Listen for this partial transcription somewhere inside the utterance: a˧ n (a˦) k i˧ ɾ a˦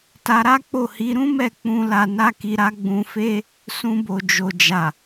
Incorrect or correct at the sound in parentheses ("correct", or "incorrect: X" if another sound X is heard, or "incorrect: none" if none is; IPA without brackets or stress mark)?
correct